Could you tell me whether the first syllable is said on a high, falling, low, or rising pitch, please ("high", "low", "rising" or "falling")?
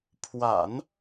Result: low